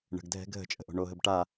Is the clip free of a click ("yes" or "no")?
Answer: yes